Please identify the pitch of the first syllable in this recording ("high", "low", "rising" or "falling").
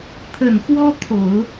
low